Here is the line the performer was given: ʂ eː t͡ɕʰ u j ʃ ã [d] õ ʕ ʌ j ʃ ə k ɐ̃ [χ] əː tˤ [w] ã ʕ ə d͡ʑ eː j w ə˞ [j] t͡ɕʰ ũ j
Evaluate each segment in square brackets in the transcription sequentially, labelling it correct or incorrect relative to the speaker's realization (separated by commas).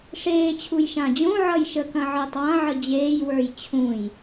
incorrect, incorrect, correct, correct